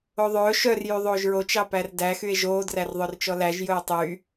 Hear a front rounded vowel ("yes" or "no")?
yes